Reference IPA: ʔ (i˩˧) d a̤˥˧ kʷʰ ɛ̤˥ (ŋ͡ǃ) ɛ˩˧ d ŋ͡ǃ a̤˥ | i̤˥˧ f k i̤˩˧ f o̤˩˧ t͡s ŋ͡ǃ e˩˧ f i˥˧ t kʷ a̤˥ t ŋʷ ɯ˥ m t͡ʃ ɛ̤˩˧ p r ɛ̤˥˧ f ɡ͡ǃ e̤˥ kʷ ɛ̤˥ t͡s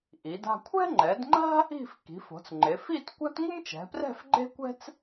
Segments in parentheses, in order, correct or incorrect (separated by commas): correct, correct